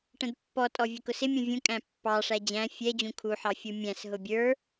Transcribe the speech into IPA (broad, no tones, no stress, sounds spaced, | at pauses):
ʈ ə̃ d pː ɔ tʼ ɔ vʲ ə k ʊ s ɪ mʲ ɔ̃ vʲ ũ kʼ æ̃ pː ɑ ʂ æ d͡ʑ æ̃ fʲ ɛ d͡ʑ ũ kʰ u ħ ɑ fʲ u mʲ æ̃ s ɦ ʊ bʲ ə˞